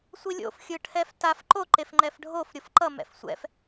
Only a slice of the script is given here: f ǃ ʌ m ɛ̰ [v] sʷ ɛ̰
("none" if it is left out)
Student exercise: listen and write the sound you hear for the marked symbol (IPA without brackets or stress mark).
f